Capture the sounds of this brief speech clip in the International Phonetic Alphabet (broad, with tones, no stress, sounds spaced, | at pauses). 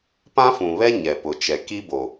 p ã˦ f ũ˨ β ɛ˦ ɲ ɛ˨ p ʊ˨ t͡ʃ ɛ˨ k i˦ b o˨